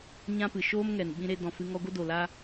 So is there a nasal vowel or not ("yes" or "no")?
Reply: yes